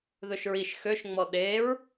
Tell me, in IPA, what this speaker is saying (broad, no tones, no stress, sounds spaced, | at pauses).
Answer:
ð ɵ ʃ ɹ i ʃ x ø ʃ ŋ͡m ɔ ɗ e ɹ